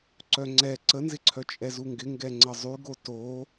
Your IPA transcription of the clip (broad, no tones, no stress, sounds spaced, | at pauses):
ǀ œ ŋ͡ǀ ɛ ǀ ə n z ɪ ǀʰ œ t͡ʃʼ ɛ z u ŋ ɡ ɪ ŋ ɡ ɛ ŋ͡ǀ ə zˤ y ɡ o t o